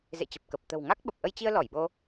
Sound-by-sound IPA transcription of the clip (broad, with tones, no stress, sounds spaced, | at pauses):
z ḛ˧˨ t͡ɕ ə˨˩ p̚ k ə˨˩ p̚ t̪ ə̤˨˩ w ŋ a˦˥ k̚ ɓ ə˨˩ p̚ ʔ ə˧ j t͡ɕ i˧ ə̯ l ɔ˧˩ j ɓ o˧